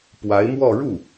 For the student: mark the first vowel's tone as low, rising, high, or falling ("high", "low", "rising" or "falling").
rising